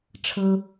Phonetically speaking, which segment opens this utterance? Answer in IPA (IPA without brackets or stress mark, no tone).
ʈ͡ʂʰ